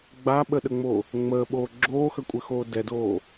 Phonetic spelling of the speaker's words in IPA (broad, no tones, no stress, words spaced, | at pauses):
ɡ͡baɓəɗəŋ͡mo | ŋ͡məːɓoː ɡ͡ǁoːxəkʷʼɘxoː dɛdoː